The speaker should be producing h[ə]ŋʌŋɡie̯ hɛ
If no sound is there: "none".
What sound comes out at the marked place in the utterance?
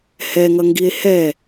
ɛ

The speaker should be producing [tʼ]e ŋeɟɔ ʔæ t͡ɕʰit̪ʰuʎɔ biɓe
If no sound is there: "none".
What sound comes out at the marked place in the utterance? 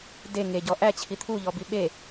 d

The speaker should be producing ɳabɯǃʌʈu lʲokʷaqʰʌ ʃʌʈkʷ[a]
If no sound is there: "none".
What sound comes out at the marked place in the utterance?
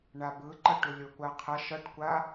a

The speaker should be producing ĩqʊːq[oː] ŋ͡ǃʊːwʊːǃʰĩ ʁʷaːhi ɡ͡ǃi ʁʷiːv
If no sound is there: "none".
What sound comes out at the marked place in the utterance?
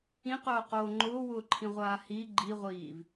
oː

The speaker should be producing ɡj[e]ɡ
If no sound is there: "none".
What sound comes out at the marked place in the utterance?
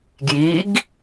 i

